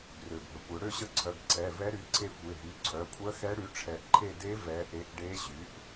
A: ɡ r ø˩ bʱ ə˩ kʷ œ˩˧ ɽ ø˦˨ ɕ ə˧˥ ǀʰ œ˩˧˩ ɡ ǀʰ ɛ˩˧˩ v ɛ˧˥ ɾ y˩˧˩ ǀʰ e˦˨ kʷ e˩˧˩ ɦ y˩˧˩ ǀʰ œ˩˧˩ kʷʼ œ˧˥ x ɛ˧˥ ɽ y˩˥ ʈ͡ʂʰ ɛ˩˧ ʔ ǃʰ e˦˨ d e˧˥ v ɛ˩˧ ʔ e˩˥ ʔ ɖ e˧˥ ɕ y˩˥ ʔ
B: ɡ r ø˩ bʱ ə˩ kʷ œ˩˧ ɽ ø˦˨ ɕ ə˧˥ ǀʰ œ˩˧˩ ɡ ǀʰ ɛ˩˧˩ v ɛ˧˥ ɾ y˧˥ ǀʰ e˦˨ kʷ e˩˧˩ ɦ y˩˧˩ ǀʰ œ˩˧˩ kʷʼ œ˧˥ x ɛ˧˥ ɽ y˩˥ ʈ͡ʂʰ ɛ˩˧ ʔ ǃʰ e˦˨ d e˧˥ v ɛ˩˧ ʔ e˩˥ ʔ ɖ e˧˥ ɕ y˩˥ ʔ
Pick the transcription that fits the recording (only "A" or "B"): A